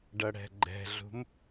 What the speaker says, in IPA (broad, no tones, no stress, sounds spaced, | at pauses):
ɖ ʌ ɽ ɛ̤ ɡ͡ǃ ɛ̤ ɮ ṳ m